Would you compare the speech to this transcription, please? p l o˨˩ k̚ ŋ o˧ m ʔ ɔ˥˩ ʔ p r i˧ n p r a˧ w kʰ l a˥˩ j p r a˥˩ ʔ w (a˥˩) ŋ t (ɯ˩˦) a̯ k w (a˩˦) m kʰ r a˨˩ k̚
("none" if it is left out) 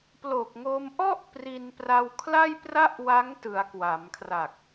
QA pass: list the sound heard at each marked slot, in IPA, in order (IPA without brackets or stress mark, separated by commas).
a˦˥, ɯ˩˦, a˩˦